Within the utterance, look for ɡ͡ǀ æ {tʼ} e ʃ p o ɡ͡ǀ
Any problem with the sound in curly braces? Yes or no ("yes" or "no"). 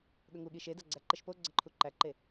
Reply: yes